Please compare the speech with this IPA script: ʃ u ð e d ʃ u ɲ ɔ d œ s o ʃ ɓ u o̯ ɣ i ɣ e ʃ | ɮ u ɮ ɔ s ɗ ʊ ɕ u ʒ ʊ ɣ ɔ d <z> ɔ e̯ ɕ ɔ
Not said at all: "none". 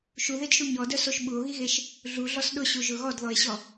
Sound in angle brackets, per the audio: ð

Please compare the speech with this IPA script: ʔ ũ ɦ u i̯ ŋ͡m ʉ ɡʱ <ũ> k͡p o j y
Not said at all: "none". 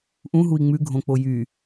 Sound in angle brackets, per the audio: õ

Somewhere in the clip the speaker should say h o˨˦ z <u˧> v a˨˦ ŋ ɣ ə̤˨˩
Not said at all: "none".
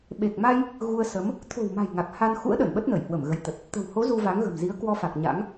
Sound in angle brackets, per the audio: u˧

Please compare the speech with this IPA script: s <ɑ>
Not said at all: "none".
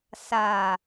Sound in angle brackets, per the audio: a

